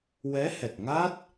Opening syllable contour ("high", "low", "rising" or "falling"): rising